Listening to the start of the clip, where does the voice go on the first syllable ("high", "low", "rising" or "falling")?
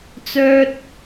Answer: low